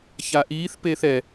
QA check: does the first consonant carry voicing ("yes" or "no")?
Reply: no